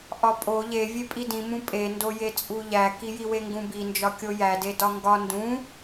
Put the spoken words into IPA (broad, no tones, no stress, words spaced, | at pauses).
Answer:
ʔɒpʼo ʎevʲe pʼidĩmũ pʼendojet͡sʼu ʎækijiwe ŋɡũbind͡ʒɒkʲo jæde dɒŋɡɒ ndũ